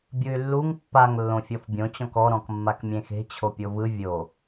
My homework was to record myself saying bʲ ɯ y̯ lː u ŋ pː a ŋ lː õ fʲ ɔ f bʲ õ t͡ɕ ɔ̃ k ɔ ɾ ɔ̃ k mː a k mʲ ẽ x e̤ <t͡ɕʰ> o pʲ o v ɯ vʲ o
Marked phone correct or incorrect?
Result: correct